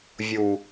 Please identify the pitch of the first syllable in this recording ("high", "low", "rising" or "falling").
low